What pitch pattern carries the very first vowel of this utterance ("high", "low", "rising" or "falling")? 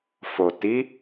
low